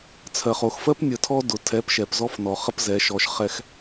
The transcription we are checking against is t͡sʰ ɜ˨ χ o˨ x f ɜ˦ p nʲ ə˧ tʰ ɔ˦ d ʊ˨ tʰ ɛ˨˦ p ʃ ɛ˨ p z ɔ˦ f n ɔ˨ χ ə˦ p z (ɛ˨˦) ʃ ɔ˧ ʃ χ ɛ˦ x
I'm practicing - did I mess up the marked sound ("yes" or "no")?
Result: no